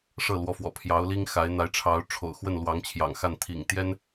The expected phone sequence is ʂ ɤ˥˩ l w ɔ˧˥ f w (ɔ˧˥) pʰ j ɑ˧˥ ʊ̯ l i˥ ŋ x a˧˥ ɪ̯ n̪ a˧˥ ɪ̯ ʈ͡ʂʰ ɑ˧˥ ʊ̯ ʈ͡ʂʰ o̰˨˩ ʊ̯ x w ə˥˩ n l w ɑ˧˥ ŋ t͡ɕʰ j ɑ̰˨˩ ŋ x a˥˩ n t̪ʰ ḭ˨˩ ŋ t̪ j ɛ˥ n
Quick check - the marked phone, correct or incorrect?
incorrect